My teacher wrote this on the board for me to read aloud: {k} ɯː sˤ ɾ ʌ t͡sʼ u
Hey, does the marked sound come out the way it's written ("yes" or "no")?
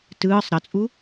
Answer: no